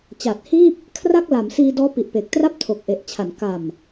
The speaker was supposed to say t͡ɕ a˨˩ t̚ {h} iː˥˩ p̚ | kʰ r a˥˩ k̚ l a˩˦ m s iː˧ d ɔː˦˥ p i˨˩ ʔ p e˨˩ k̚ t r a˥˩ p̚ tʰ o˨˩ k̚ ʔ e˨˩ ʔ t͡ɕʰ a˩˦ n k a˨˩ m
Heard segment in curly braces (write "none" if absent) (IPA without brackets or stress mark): h